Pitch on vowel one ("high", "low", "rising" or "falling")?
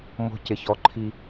high